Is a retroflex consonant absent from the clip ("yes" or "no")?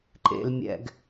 yes